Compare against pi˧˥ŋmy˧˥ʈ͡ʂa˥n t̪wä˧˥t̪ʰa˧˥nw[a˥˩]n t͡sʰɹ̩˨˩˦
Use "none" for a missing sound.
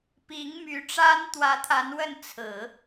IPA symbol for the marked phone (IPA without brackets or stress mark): ə˥˩